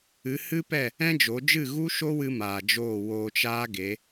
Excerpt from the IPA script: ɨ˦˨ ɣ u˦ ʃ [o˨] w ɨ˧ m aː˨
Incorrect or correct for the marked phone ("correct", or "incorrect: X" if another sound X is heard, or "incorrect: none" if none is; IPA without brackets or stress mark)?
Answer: incorrect: o˦